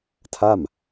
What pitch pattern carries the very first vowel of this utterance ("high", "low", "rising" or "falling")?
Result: falling